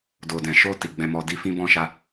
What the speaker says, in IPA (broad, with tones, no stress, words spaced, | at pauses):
do˨dɛ̃˨ʃo˧ ti˨ɡ͡bɛ̃˧mɔ˧di˦ fĩ˦bɔ̃˦ʃa˦